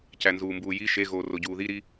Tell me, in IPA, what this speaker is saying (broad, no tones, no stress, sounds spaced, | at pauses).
c æ n z uː m b uː j i ʃ e ɣ oː r o ɟ uː ð i ɾ i